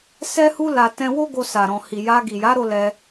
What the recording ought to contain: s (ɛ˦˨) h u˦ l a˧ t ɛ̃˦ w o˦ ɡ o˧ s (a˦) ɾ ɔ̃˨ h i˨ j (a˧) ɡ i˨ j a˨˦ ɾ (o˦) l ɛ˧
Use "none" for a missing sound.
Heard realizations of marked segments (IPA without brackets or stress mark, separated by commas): ɛ˦, a˨, a˧, o˧